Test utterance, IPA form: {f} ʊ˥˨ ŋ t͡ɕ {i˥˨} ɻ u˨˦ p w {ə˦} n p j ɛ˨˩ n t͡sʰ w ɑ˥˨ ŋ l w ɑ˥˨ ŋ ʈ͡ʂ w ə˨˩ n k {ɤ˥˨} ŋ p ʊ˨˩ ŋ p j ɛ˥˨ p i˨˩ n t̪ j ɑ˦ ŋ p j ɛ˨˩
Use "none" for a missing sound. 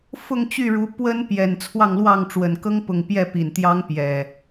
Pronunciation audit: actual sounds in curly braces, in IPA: f, y˥˨, ə˦, ɤ˦

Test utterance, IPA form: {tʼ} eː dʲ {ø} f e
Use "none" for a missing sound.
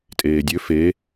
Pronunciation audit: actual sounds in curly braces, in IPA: tʼ, ø

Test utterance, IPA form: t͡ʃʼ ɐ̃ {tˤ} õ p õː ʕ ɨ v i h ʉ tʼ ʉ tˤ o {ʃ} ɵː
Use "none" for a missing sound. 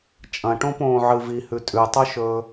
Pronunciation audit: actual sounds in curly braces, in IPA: ʈ, ʃ

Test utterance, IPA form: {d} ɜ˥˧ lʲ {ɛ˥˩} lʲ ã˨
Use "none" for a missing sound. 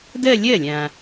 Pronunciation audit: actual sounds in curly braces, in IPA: d, ɜ˥˩

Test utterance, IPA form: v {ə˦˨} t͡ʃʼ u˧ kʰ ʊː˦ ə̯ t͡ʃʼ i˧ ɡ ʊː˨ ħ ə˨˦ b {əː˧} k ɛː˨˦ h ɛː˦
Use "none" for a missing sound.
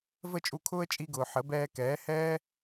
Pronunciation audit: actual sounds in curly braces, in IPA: ə˦˨, ɛː˧

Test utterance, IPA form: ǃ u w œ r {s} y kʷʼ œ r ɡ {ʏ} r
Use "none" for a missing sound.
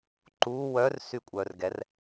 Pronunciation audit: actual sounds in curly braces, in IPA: s, ɛ

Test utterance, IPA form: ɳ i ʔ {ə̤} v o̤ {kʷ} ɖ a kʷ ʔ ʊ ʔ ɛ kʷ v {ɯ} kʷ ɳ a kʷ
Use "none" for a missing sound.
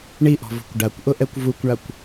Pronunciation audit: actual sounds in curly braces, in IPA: ɔ̤, kʷ, u

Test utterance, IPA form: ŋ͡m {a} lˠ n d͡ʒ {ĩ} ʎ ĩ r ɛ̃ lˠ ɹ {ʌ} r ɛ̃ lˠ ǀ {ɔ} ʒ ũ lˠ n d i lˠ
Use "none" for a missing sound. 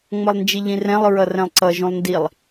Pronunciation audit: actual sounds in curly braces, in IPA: ʌ, i, ʌ, ʌ

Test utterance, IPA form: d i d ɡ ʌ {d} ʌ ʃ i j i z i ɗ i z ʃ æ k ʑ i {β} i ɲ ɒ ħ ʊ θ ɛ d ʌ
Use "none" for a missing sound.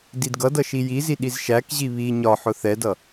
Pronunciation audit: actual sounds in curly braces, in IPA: d, β

